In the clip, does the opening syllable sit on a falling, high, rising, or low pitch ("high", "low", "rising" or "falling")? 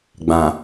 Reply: low